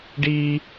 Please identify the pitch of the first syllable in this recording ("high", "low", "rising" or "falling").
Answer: high